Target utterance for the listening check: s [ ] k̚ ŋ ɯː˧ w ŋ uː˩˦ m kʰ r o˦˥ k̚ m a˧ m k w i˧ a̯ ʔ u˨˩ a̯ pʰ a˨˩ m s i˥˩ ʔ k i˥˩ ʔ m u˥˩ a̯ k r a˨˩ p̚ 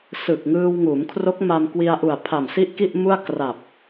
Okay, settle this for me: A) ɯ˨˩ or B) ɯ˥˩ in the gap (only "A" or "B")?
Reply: A